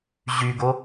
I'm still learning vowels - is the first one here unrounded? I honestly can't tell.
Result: no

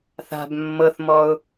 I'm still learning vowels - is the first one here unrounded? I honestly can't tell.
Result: yes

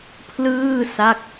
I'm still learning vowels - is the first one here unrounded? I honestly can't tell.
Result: yes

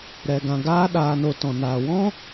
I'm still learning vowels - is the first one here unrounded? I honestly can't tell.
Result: yes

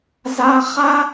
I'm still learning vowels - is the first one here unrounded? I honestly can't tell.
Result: yes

